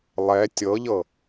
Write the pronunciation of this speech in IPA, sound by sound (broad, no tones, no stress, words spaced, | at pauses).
lˠɛ tʲɤʎɤ